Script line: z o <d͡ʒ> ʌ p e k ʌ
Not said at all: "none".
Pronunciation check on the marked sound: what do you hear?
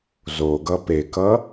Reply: ɡ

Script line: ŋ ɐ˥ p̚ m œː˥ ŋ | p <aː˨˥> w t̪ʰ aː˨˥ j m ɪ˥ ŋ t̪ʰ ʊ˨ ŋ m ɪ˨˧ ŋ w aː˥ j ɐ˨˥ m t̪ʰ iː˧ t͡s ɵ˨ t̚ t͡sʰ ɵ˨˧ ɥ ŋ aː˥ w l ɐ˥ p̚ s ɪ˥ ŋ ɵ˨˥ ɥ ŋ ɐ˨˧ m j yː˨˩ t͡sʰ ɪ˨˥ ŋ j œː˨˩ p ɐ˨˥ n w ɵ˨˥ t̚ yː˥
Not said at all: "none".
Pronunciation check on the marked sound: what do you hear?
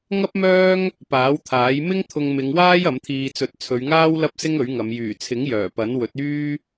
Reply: aː˨˥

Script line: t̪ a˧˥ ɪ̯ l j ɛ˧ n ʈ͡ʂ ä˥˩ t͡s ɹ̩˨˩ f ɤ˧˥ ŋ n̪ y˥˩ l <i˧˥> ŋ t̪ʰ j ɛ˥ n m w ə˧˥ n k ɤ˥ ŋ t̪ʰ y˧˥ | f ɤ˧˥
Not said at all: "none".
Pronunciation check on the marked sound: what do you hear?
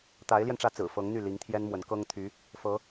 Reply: i˧˥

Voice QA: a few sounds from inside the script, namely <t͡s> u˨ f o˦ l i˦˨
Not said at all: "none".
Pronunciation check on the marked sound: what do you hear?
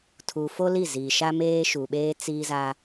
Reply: tʰ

